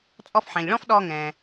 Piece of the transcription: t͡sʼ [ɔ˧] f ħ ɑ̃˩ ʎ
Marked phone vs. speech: correct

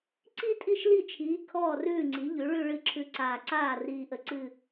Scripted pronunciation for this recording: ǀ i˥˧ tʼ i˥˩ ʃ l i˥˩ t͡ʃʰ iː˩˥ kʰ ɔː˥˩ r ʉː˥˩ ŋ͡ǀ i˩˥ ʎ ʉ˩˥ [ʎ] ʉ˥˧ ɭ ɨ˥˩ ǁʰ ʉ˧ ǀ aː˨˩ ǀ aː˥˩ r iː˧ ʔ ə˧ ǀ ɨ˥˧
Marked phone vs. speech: incorrect: ɭ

